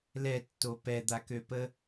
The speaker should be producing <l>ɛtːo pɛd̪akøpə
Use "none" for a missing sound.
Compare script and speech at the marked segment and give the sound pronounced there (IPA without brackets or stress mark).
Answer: l